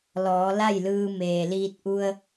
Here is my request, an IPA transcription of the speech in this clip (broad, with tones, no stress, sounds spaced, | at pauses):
l ɔː˩˧ l a˥˨ j l ɯː˧ m eː˩ l iː˧ t̚ ʔ u˧ ə̯